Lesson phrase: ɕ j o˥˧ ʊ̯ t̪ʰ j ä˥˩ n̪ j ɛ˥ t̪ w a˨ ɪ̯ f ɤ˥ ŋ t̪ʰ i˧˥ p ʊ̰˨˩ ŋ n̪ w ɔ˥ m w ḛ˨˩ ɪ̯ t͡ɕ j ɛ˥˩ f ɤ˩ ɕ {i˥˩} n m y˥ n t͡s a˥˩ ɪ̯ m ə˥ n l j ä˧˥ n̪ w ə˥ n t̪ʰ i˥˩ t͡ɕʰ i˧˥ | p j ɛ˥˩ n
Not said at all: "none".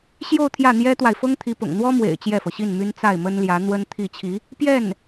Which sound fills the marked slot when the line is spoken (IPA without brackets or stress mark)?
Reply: i˥˩